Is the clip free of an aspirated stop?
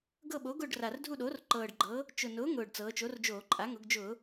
yes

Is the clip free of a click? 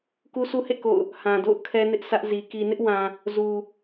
yes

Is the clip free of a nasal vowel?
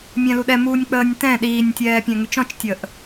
no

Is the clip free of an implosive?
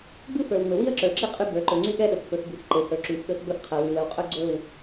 no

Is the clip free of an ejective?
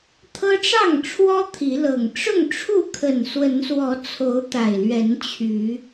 yes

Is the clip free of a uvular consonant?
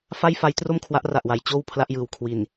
yes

